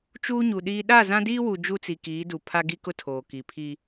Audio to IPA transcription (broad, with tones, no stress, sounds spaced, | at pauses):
t͡ʃ uː˦ ɲ u˨ ɗ iː˦ ɗ a˦˨ z ã˦ d iː˦ w u˨ d͡ʒ u˦ t͡s i˨ k iː˨˦ d u˨ pʰ a˦ ɡ i˦ k ʊ˦ tʰ oː˨ k i˨ pʰ i˦